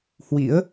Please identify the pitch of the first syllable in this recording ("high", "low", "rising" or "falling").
rising